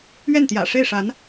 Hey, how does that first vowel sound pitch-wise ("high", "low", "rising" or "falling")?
falling